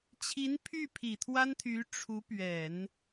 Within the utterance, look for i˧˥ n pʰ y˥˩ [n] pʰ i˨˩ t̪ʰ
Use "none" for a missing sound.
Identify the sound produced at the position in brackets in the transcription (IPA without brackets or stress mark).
none